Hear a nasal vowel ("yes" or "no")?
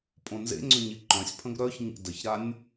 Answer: yes